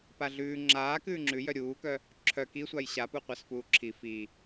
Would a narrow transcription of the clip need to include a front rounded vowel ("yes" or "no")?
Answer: yes